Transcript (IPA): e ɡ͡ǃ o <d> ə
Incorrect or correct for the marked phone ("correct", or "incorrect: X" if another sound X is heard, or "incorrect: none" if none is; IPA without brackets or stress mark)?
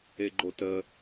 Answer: incorrect: t